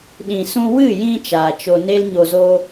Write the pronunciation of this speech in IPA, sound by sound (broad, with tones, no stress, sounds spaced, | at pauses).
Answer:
ɗ ĩ˨ s ũ˧ w ɨ˦˨ j ĩ˧ t͡ʃ aː˨ t͡ʃ o˧ n e˦ l ɲ o˧ z o˦